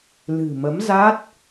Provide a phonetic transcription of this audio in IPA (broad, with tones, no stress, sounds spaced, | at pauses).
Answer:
l ɨ̤˨˩ m ə˨˦ m z a˦˥ t̚